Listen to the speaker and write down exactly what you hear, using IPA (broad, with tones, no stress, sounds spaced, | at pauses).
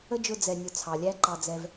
ə˦ d͡ʒ ʊ˧ d͡z ɛ˨ nʲ ʊ˨ t͡sʰ ɑ˨ lʲ æ˦ ǃ ɑ˧ d͡z ɛ˧ v